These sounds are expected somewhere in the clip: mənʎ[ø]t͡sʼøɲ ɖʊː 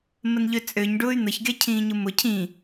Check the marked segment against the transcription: correct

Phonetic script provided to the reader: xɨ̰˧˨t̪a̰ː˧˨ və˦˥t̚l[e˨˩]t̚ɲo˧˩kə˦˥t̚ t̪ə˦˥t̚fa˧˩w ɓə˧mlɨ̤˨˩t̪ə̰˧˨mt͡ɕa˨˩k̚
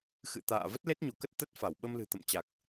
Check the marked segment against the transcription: incorrect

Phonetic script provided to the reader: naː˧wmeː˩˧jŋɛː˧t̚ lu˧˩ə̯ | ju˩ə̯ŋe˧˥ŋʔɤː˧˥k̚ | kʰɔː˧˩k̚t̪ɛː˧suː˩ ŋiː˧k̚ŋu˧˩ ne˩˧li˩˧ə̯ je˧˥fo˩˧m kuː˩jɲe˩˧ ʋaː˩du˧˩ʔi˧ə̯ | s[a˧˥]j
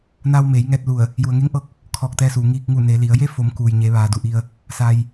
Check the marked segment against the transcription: incorrect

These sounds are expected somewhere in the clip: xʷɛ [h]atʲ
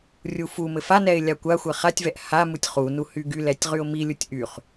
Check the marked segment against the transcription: incorrect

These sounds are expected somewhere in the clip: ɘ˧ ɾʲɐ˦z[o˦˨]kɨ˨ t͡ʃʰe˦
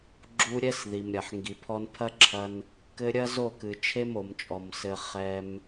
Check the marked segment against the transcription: correct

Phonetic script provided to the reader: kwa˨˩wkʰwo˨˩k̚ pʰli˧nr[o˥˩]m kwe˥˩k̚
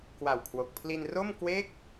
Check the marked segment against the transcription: correct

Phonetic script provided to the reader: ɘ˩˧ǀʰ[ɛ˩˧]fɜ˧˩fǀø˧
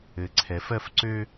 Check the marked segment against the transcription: correct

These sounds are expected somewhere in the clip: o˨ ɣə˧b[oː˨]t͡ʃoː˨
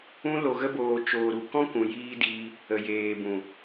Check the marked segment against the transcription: correct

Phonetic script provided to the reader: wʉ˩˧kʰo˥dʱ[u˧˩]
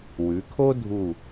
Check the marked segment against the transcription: correct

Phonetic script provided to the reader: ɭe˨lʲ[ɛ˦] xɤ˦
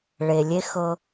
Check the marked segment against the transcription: incorrect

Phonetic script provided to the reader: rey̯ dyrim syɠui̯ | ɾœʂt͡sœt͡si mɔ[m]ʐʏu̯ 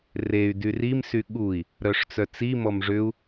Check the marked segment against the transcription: correct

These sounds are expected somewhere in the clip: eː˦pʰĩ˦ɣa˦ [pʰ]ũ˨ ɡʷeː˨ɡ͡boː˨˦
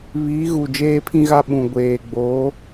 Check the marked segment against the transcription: incorrect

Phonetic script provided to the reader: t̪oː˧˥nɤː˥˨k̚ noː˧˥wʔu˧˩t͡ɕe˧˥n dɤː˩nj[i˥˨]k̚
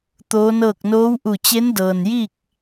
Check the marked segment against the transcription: correct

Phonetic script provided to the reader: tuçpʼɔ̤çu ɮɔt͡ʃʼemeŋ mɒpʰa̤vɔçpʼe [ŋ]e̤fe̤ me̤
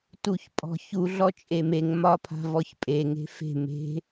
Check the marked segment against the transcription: correct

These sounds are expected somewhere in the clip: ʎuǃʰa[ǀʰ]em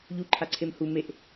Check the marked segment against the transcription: correct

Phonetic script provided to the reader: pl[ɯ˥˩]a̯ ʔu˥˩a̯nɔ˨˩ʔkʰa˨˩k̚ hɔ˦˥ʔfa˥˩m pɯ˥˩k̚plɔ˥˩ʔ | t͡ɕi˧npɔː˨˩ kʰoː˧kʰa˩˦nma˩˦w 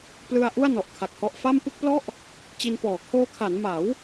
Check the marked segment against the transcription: incorrect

